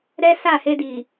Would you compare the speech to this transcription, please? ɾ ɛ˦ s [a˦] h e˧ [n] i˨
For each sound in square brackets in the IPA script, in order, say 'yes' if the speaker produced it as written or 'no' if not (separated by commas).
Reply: no, no